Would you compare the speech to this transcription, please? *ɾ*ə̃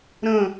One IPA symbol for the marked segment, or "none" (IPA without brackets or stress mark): ɾ